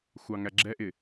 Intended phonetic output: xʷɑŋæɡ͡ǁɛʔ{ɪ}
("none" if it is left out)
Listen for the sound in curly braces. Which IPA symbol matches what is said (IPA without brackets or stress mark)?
ɪ